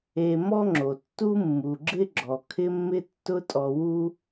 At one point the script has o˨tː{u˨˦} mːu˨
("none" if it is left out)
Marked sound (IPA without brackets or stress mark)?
u˦